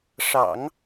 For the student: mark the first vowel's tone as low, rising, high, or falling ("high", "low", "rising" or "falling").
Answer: low